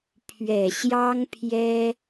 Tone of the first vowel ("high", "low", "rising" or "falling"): low